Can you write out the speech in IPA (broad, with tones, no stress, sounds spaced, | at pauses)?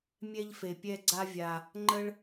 mʲ ɛ˧ ʎ f e˨ pʲ ɛ˧ ɡ͡ǀ a˦ vʲ a˧ | ŋ͡ǃ ə˦ ɭ